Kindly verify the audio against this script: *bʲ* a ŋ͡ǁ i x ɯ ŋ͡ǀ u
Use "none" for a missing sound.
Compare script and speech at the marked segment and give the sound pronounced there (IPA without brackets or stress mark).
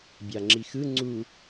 bʲ